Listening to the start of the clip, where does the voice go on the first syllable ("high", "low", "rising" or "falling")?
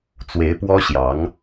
rising